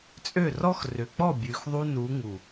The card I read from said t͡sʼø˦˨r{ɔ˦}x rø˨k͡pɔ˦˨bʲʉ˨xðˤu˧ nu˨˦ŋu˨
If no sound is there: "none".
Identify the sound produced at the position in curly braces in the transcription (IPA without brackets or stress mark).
ɔ˦